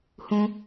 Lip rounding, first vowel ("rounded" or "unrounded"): rounded